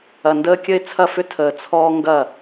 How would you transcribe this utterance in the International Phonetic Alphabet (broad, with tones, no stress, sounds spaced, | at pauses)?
ɐ˨ n d əː˦ kʲ ə˦ ɪ̯ t͡sʰ ɐ˦˨ f ʏ˦ tʰ əː˨ t͡sʰ ɔː˦ ŋ ɡ ɐ˦˨